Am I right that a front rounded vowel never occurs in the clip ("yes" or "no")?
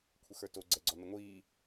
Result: yes